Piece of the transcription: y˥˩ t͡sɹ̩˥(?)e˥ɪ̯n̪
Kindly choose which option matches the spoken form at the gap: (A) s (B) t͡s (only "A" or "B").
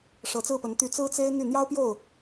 B